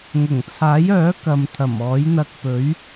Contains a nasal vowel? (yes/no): no